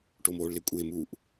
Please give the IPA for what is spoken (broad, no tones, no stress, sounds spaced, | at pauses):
ʈ o m oː ɭ l ɪ kʷʼ e m u ʔ